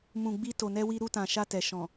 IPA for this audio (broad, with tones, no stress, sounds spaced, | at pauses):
m ũ˨ ɡ͡b i˧ t o˨ n ɛ˧ w i˧ ɾ u˧ t ã˨ ʃ a˧ t ɛ˨ ʃ ɔ̃˨